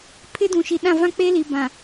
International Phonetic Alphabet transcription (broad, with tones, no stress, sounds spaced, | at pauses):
pʰ ɪ˦ d ũ˨ ʃ i˨ ɗ ã˦˨ v ã˦ k͡p e˦ l i˨ b ã˨